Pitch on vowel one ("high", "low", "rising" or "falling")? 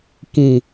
low